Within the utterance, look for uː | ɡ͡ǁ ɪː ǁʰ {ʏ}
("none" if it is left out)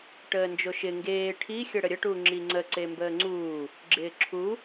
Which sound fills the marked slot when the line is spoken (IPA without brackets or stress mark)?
u